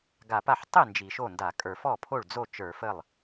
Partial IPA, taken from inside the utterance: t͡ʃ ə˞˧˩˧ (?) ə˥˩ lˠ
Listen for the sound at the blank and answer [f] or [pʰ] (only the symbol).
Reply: f